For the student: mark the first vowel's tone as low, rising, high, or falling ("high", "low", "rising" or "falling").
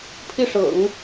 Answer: falling